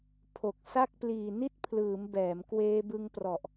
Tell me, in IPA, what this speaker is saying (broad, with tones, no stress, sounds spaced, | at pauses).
pʰ o˨˩ k̚ s a˥˩ k̚ p l iː˨˩ n i˥˩ t̚ pʰ l ɯː˩˦ m b ɛː˩˦ m k w eː˧ b ɯ˧ ŋ p r ɔ˨˩ ʔ